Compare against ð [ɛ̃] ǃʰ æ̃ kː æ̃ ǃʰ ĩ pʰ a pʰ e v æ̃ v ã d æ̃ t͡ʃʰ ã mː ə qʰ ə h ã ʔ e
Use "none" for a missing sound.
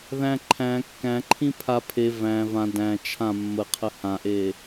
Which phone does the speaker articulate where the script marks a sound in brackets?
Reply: æ̃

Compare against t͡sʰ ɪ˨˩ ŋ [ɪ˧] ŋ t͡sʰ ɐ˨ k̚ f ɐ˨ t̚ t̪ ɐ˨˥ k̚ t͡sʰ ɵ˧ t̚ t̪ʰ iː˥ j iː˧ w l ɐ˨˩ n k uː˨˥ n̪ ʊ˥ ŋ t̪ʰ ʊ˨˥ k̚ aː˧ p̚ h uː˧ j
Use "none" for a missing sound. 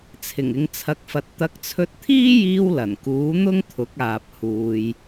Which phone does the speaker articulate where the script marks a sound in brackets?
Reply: ɪ˨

